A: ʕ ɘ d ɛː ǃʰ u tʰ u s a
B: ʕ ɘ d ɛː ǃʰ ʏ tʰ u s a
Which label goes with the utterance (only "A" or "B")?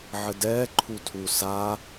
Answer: A